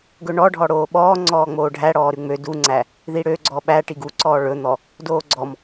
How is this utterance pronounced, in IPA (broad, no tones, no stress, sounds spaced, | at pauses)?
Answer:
ɡ ɵ ɳ ɔ ɖʱ ɔ ɽ oː ɓ ɔː ŋ͡ǀ ɔː ŋ͡m oː ɖʱ æ ɽ ɔː ɾ ʉ ŋ͡m ø d u ŋ͡ǀ æ | ð i ɽ ø ɡ͡ǀ ɔ ɓ æ ʈ i ɡ u ǀ ɔː ɭ ɵ n̪ ɔ | d oː ɡ͡ǀ ɔ m